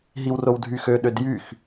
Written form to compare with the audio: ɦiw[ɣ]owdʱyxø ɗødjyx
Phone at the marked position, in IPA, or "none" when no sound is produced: r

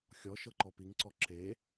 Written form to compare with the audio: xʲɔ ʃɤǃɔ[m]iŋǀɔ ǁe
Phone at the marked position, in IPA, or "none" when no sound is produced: p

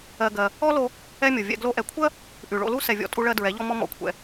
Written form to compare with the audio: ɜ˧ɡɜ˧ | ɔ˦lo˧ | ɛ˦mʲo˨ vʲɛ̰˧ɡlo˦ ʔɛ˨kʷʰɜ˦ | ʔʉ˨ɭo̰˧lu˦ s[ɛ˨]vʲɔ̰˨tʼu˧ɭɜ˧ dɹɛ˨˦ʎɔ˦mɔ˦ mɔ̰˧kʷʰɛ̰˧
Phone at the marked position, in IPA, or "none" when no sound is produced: ɛ˨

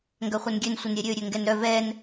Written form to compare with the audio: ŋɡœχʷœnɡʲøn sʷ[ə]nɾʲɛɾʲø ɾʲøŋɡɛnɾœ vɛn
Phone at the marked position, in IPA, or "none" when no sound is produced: ə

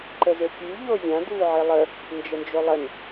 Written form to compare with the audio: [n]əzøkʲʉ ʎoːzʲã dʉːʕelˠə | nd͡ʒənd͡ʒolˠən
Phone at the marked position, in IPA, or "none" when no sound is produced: ǃ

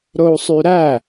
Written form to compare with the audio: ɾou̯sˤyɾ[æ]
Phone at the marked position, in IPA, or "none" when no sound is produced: æ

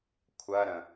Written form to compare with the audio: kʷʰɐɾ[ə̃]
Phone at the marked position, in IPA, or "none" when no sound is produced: ə̃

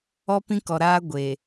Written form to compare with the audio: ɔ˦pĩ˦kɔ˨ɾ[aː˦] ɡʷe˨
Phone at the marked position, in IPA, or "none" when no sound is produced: aː˦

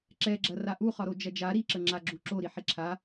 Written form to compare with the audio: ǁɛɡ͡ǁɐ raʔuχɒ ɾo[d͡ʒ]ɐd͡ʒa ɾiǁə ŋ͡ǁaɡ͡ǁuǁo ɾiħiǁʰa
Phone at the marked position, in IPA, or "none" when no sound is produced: d͡ʒ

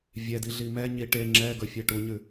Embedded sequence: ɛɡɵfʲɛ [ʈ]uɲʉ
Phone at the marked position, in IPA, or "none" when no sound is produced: ʈ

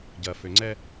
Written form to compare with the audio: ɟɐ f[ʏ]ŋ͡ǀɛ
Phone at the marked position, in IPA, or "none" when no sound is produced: ʏ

